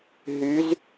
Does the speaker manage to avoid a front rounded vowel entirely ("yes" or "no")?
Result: no